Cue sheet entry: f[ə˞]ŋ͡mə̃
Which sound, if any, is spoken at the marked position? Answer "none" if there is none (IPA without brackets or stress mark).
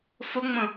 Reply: ə